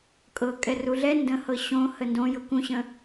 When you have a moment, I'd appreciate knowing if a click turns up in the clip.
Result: no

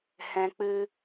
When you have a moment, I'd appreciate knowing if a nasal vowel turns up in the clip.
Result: yes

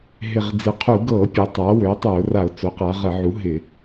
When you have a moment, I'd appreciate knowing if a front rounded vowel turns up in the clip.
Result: yes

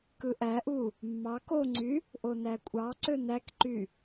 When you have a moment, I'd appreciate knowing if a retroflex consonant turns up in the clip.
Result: no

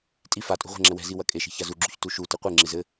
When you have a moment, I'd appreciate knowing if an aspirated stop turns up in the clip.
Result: no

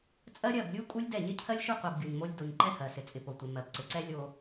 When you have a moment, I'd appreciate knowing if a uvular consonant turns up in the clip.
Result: yes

